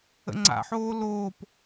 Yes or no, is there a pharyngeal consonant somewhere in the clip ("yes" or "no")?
yes